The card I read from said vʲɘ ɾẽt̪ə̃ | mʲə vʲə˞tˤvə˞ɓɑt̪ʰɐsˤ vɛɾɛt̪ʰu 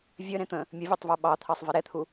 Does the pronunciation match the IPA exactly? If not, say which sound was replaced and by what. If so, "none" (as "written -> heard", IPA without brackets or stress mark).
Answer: ɐ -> ɑ